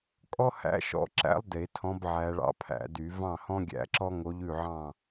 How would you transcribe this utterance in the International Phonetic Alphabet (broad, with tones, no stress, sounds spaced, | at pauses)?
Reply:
kʼ ɔ˥ h æ̰˧˥ ʃ ɔ̰˧˥ ǁ æ̰˧˥ lˠ d e˨˩˦ tʰ ɔ̃˧˥ b ʕ æ˧˥ ɭ ɑ̰˥ pʰ æ̰˨˩˦ d y˨˩˦ v ɑ̃˥˨ h ɔ̃˥ ɡʲ æ̰˧˥ ǁ ɔ˥ ŋ o˧˥ ʎ ʉ˥˨ ʕ ɑ̃˥˨